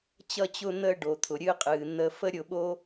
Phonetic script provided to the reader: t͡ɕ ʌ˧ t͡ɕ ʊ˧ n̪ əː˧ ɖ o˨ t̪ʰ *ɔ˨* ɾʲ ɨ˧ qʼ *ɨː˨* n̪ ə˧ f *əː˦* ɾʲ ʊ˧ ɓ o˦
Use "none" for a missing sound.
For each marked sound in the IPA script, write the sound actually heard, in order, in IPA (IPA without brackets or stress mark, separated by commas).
ʊ˨, ɨː˨, ə˦